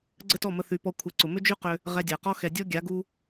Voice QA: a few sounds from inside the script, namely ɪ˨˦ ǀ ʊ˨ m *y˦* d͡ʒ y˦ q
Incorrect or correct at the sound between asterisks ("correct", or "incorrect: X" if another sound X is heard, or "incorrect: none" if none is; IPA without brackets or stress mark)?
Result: incorrect: ʏ˦